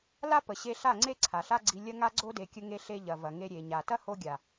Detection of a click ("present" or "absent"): present